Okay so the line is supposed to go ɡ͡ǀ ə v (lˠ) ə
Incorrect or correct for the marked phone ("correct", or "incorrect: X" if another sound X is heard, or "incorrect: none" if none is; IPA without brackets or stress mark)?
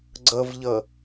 incorrect: ʎ